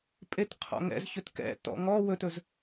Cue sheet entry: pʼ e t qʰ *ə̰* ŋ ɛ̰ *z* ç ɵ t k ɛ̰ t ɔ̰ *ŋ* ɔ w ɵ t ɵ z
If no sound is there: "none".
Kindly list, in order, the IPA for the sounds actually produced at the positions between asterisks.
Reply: ɔ̰, z, ŋ

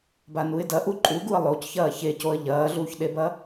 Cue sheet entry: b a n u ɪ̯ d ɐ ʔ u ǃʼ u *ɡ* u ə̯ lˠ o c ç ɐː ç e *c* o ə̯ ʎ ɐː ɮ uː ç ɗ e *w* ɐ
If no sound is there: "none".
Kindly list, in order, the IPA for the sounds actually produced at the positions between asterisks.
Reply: ɡ, c, b

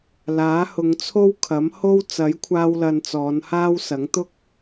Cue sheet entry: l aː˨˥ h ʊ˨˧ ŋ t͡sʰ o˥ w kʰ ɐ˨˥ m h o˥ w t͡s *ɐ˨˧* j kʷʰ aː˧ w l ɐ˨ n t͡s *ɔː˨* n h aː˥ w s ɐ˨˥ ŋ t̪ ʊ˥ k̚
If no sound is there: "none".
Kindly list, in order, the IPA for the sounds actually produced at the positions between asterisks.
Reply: ɐ˨˥, ɔː˨˧

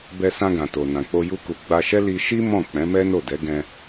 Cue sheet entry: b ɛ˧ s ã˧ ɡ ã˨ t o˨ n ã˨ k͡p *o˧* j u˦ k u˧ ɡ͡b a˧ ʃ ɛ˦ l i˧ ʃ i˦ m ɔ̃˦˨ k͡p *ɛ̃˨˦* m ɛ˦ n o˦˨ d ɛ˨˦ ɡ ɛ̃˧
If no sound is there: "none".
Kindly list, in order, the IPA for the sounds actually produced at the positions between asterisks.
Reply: o˧, ɛ̃˨˦

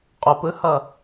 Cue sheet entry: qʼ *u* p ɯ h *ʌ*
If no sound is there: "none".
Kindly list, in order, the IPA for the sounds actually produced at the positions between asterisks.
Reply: o, ʌ

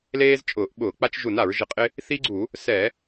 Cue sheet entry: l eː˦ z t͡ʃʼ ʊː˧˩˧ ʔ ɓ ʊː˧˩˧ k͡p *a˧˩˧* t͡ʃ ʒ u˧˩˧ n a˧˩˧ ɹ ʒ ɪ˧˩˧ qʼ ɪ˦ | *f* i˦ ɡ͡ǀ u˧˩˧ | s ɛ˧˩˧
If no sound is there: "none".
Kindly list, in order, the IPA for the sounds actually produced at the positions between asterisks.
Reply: a˦, θ

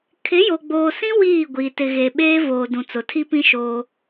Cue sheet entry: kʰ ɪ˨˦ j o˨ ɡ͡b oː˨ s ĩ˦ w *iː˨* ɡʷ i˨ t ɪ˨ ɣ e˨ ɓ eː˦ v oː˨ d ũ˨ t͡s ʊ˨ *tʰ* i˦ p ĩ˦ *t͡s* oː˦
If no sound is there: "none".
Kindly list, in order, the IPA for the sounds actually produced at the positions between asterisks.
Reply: iː˦˨, tʰ, ʃ

